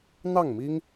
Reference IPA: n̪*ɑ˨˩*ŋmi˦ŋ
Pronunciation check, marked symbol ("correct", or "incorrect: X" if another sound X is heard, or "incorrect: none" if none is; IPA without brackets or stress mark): incorrect: ɑ˥˨